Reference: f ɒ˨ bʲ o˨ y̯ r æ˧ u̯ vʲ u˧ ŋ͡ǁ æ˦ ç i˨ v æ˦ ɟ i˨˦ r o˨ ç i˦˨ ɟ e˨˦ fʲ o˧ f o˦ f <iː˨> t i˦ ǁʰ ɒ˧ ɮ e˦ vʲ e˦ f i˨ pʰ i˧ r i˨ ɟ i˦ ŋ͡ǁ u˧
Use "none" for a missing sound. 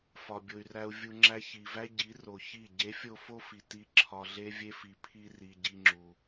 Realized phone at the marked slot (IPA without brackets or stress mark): i˨